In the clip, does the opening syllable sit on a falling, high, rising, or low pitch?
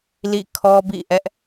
falling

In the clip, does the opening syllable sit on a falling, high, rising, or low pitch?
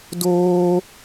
high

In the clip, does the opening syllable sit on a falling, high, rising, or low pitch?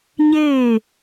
falling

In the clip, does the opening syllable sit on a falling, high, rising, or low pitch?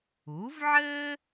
rising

